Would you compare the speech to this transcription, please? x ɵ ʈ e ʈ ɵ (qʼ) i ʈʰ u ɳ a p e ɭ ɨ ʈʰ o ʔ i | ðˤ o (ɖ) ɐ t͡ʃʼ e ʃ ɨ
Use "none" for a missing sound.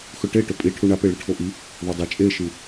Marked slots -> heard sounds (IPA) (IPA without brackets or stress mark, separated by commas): pʼ, dˤ